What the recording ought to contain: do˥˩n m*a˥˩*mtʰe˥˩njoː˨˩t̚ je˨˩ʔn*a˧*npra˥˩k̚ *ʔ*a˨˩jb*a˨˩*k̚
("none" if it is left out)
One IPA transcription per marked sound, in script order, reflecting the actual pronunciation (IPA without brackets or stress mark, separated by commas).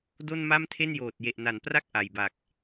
a˥˩, a˩˦, ʔ, a˨˩